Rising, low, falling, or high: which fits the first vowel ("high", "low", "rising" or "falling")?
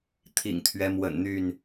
low